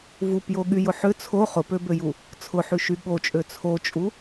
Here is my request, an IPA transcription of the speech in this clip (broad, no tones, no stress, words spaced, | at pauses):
vupjoɠyjʊ ħʏ t͡sʰo χʊpøbøju | t͡sʰʊħyʃy ɠot͡ʃʼø t͡sʰot͡ʃʼu